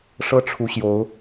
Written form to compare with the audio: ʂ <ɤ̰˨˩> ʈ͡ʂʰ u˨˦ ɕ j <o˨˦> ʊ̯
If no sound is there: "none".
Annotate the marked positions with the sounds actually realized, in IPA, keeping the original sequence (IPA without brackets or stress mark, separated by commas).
ɤ˦, o˨˦